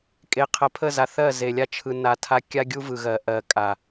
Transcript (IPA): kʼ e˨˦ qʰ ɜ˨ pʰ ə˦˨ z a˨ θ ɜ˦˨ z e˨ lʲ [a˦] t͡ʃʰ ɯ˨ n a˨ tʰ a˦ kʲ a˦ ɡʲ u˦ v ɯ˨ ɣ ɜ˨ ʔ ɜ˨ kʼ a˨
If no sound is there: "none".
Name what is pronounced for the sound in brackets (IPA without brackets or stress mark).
a˦